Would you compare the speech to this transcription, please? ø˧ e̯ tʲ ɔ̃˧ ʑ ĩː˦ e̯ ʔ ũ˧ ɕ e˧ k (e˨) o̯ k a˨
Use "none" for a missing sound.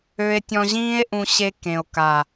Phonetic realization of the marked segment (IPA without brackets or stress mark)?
ẽ˨